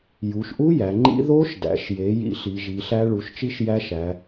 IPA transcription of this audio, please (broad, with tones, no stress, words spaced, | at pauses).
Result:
ju˩˧ʃʔu˦˥ jæ˩˧ŋ͡ǃḭ˦˥ ðo˦˥ʃdæ̰˩˧ʃje˩˧ jḭ˦˥ɬi˩˧ʒi˩˧ɬæ˦˥ ɭu˩˧ʃt͡ʃi˦˥ʃ jæ˦˥ʃæ˩˧